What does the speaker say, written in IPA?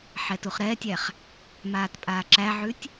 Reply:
ħ ɛ t u χ ɾ ɛː tʲ æ χ | m aː t pʼ aː ǁ æ ʕ ʉ tʲ

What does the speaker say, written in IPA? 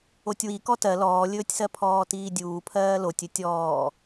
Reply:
o tʲ w i k ɔ t ɜ l ɔː lʲ ɵː tʲ s ɜ pʰ ɔː t iː dʲ uː pʰ ɜː l o tʲ ɵ tʲ ɔː

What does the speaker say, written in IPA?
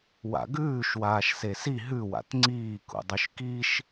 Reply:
w a̰ ɡ ʉː ʃ w aː ʃ s e s i ɦ ʉ w a̰ t ŋ͡ǀ iː k ṵ dˤ ʉ ʃ k i ʃ

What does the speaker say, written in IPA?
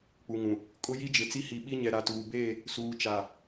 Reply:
k͡p u˨ ŋ ũ˨ | kʼ ʊ˦ j i˦ d͡ʒ ɪ˨ t͡s i˦ h i˨ ɓ i˦ ɲ ɛ˨ ɾ a˨ t uː˨ b eː˦˨ | s uː˨ t͡ʃ a˨

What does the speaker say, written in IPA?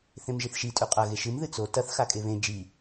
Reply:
θ ẽ m ʒ i θ ʃ i tʼ ʉ qʼ ɐ ɣ e ʃ ɨ m ð ɨ t͡s o t ɐ θ x a kʼ e β ẽ d͡ʒ i

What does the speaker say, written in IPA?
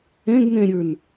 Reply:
ɛ̃ ɡ n ɛ̃ ɾʲ ə˞ n

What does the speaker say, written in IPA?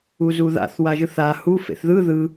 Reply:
u z u ð a̰ θ w a ʒ ɯ θ a h u f ḛ θ ð ɯ ð ɯ

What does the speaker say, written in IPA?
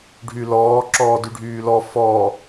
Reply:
ɖʱ y l ɔː ǁ ɔː d y ɖʱ yː l ɔ f ɔ

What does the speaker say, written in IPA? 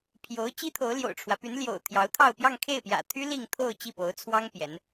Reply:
pʰ j o˧˥ ʊ̯ t͡ɕ i˥ t̪ʰ o˧˥ ʊ̯ l j o̰˨˩ ʊ̯ ʈ͡ʂʰ w ä˦ p y˧˥ n l j o̰˨˩ ʊ̯ t̪ʰ j ɑ˧˥ ʊ̯ t̪ʰ ɑ˥˧ ʊ̯ p j ɑ˥˧ ŋ kʰ e˥˩ ɪ̯ p j ä̰˨˩ t̪ʰ y˥ l i˥˧ ŋ t̪ʰ o˥˧ ʊ̯ t͡ɕ i˥˩ p o˧˥ ʊ̯ t͡sʰ w ɑ˥ ŋ p j ɛ˧˥ n

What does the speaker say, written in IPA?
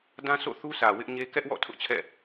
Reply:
d ã˦ sʰ o̰˦˨ θ u˦ sʰ ä˨ w ɪ˦ ʔ ɲ e˦ k ɛ˦ ʔ w ɔ̰˦˨ tʰ ʊ˦ ʔ t͡ɕʰ ɛ̰˦˨

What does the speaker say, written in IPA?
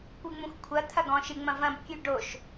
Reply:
kʷ ɨ ŋ͡m ũ x kʷʰ ɐ t̪ʰ ɐ ɡ ɔ̃ ʃ ɨ ŋ͡m ɐ̃ v ɐ̃ b kʲ ʉ ɖ o ʃ

